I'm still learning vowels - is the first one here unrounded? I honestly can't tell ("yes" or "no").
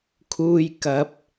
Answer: no